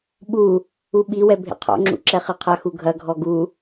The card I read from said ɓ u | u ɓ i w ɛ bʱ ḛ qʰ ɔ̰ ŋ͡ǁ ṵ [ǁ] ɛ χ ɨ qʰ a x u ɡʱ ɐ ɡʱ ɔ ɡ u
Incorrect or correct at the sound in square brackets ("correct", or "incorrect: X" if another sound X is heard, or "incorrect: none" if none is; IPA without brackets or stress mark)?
correct